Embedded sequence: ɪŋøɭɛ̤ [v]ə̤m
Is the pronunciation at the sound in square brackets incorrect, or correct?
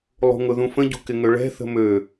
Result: incorrect: θ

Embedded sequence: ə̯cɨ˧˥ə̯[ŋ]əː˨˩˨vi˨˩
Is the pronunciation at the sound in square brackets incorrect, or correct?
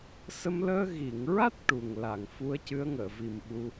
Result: correct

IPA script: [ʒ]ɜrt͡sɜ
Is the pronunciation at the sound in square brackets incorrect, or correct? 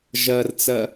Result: correct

